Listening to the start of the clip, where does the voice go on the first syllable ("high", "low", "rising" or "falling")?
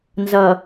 low